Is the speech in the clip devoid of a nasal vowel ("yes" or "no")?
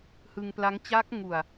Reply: yes